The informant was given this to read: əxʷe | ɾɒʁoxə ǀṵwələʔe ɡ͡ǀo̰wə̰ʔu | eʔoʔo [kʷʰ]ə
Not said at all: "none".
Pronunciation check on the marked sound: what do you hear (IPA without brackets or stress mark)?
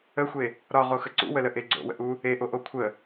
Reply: kʷʰ